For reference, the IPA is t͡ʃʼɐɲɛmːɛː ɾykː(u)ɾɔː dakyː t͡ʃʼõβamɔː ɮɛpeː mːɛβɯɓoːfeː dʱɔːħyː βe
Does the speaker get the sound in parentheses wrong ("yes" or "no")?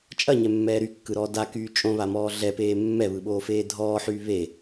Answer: yes